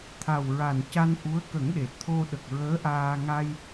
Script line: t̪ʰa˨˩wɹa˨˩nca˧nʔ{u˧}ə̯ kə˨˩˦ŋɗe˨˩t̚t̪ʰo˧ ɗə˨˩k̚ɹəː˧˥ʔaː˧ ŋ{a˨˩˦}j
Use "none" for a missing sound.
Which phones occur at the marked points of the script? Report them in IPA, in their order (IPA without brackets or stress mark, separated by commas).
u˧˥, a˧